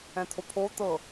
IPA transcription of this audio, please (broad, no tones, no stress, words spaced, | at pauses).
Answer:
ɛ̃t̪ʰopʰo t̪ɤ